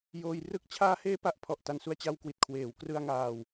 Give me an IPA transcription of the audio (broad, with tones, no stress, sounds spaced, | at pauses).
j oː˧ j r ɯ˥˩ k̚ t͡ɕʰ aː˧ h eː˧ p a˦˥ ʔ pʰ ɔ˨˩ ʔ t a˧ n s u˧ a̯ t͡ɕ a˧ w k w i˨˩ t̚ kʰ w eː˩˦ w k r ɯ˧ a̯ ŋ aː˧ w